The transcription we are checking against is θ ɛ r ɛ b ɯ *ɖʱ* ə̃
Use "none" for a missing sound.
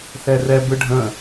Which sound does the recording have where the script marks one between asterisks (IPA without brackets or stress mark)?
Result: ɖʱ